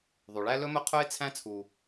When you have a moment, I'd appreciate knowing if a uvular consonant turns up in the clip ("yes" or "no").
yes